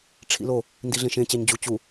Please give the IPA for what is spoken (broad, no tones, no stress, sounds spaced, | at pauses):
ʈ͡ʂʰ ḭ l o | n d i ɮ ẽ ʃ ẽ t͡ɕ æ ɲ d͡ʑ u t͡ɕ u